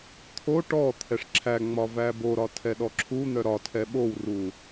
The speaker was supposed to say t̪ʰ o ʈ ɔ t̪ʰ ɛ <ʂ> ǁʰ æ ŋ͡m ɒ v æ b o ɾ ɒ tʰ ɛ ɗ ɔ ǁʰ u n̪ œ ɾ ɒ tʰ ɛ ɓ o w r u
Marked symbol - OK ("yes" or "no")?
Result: yes